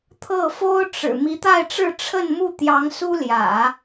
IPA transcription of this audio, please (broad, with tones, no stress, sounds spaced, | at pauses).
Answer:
t̪ʰ ɤ˥˩ f o˥ ʊ̯ ʈ͡ʂ ɻ̩˨˩ m i˧˥ t̪ a˥˧ ɪ̯ ʈ͡ʂ ɻ̩˥˧ ʈ͡ʂʰ ə˥˧ n m u˥˩ t̪ j ɑ˧˥ ŋ s u˥ l j ä̰˨˩˦